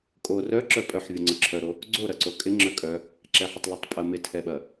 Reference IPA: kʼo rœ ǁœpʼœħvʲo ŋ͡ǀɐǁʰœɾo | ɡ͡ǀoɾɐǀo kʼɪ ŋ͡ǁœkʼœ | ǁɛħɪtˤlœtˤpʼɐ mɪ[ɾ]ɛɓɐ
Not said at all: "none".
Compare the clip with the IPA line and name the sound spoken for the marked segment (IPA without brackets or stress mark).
tʰ